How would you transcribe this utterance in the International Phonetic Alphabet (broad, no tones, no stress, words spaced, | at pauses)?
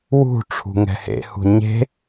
wṳ ʈ͡ʂʰṳŋɛ̤hḛhṳ ɲe̤